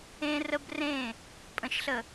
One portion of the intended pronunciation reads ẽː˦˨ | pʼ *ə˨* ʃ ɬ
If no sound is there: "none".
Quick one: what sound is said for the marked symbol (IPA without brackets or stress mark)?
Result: ə̃˨